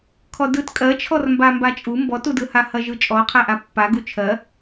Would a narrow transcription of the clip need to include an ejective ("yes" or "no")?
yes